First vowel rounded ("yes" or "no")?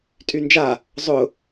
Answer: yes